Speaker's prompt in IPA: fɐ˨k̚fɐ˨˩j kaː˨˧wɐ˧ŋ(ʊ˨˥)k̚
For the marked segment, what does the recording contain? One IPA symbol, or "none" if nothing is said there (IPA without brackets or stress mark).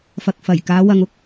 ʊ˥